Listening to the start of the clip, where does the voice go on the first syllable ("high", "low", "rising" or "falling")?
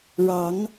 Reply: rising